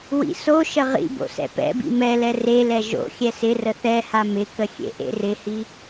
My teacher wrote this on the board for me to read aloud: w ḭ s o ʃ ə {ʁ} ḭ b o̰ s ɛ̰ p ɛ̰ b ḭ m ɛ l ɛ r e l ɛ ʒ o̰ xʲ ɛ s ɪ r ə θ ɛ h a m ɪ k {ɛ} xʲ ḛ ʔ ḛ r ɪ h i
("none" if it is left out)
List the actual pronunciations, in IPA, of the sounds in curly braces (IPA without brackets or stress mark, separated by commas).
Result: ʁ, ə